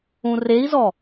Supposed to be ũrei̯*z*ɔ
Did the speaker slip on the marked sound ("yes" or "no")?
no